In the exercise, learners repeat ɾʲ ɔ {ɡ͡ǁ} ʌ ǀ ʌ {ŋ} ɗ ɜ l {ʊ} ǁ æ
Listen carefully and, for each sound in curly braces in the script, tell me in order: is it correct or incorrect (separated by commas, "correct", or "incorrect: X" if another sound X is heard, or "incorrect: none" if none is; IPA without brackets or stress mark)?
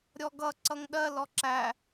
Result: incorrect: ɡ, correct, incorrect: ɔ